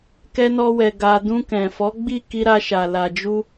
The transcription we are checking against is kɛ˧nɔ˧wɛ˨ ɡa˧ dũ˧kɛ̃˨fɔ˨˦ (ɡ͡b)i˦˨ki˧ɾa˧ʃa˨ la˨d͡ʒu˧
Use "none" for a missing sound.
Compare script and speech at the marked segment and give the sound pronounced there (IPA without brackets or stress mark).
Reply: ɡ͡b